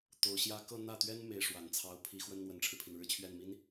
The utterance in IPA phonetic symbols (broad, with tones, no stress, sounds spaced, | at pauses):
t̪ o˧˥ ʊ̯ ɕ j ä˥ k ɤ˥˧ n̪ ä˥˩ t̪ ɥ ɛ˥ n m e˥ ɪ̯ ʂ w a˨˩ n t͡sʰ ɑ˥ ʊ̯ pʰ i˧˥ x w ə˥ n n̪ w ə˨˩ n ʈ͡ʂʰ ɻ̩˦ pʰ i˩ n ɻ ɻ̩˥˧ t͡ɕʰ ɥ ɛ˥˩ n m i˥ n